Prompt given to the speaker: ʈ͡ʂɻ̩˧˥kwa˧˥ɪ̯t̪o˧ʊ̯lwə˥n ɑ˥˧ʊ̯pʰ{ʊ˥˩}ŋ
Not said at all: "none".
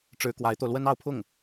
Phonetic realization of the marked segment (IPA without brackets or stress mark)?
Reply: ʊ˥˩